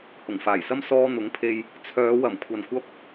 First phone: h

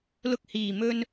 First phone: l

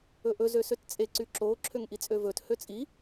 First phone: ɵ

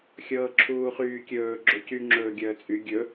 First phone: xʲ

